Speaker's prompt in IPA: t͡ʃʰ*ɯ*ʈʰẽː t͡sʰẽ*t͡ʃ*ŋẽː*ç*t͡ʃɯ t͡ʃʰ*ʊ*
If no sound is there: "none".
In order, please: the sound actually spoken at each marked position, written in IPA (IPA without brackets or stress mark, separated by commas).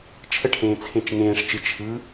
ə, t͡ʃ, ʂ, ɯ